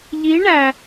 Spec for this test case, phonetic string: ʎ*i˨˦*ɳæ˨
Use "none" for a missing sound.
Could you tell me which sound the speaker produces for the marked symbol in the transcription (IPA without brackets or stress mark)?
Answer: i˨˦